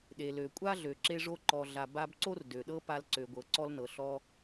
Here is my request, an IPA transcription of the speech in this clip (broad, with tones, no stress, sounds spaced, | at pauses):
ɗ e˩ l ø˩ kʷʼ a˥ ɮ ø˩ ǁ e˧ ʐ o˧ ǃ ɔ˩ ɮ a˩ b a˧ b ǀ o˥ r d ø˩ ɗ ɤ˥ p a˧ l ǀ ø˩ ɡʷ ɤ˩ ǀ ɔ˧ l n ɤ˩ ɬ ɔ˧